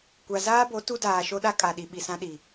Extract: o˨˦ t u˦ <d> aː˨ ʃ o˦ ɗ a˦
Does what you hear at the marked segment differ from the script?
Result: no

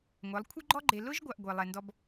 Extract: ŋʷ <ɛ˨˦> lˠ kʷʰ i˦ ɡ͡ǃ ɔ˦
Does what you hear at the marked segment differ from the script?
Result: no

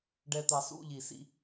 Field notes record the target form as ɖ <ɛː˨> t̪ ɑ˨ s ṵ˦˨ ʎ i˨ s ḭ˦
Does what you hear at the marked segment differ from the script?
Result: yes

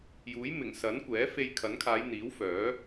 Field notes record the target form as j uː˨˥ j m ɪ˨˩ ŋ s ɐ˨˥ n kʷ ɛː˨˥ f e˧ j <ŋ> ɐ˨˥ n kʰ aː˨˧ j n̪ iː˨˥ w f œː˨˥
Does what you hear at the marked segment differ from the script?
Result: yes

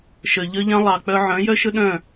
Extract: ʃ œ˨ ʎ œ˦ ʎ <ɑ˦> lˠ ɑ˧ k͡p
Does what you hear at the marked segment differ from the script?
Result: yes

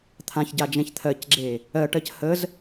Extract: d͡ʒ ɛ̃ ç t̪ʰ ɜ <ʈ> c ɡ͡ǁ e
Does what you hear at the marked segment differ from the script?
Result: yes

